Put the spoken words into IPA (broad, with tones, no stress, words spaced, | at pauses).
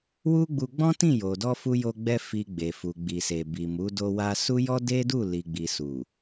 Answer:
wu˦ɡ͡bu˧ ɡ͡bɔ̃˦tĩ˦˨jo˨dɔ˧ fu˧jo˧ɡ͡bɛ˧ fi˨ ɡ͡be˨fu˨ ɡ͡bi˨se˨bi˨mu˨˦ do˧wa˧su˦jɔ˦ de˦du˦˨ li˨ɡ͡bi˨su˨